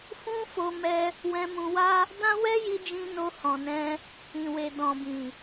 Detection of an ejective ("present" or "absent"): absent